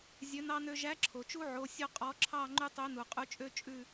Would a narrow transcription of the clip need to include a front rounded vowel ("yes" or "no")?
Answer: yes